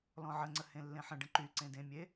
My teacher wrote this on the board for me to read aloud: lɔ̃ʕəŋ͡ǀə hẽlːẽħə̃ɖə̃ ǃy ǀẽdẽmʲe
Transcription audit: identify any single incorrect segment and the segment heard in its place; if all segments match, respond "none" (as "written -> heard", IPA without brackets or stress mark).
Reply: none